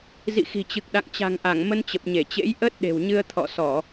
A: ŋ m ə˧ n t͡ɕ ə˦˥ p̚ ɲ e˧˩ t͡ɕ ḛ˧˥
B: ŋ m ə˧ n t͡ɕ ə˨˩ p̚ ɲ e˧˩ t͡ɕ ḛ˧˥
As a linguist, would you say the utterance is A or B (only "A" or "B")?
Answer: B